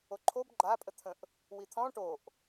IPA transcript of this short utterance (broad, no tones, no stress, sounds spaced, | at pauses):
o ǃʰ o b ɡ͡ǃ a pʼ ə t̪ʰ ə̃ ʔ | w i t̪ʰ ɔ̃ ʈ o ʔ